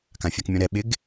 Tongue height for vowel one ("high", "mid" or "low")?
low